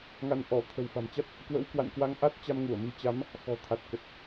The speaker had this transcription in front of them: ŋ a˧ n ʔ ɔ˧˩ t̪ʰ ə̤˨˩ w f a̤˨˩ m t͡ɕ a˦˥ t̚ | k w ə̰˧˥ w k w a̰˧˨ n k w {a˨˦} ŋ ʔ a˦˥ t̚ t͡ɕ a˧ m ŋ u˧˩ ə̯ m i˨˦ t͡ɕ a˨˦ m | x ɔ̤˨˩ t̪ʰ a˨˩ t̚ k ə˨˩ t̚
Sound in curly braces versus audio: incorrect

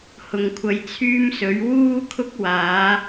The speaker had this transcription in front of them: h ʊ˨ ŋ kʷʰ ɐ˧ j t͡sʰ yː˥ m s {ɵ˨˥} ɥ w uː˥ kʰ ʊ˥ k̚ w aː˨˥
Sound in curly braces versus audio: correct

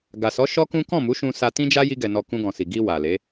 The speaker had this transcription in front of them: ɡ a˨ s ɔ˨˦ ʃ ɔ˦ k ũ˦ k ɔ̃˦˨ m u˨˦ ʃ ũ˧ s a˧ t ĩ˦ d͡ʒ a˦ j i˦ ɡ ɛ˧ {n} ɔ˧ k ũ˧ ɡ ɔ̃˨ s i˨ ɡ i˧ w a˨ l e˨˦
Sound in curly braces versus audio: correct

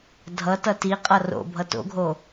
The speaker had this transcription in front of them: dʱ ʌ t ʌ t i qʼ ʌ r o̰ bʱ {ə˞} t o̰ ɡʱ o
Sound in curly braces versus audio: incorrect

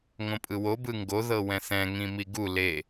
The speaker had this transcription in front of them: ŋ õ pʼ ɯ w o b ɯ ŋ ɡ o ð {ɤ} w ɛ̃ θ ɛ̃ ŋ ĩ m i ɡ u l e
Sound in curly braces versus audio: correct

